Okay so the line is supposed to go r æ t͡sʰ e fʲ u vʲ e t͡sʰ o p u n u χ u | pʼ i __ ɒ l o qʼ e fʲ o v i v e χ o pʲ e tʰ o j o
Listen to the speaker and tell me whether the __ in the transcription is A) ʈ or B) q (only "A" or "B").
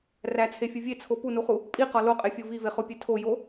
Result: B